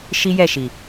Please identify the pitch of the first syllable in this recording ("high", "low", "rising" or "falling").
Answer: high